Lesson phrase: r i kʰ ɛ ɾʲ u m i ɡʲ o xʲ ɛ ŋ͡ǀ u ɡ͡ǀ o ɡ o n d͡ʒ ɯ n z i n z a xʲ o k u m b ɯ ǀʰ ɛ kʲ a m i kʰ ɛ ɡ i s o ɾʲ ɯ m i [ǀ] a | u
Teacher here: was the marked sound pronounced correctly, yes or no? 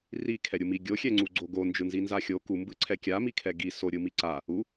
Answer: yes